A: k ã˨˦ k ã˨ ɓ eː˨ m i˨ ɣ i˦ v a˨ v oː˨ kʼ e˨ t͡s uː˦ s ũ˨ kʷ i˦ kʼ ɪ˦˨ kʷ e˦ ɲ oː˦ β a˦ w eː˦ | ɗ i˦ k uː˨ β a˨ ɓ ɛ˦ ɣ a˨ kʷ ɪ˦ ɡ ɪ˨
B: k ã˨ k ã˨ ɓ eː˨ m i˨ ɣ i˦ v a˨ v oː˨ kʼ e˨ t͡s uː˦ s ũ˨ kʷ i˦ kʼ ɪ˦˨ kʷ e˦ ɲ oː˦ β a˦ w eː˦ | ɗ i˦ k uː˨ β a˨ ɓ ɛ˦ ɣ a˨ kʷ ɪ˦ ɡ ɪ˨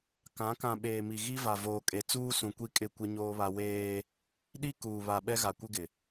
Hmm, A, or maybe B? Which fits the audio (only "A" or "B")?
A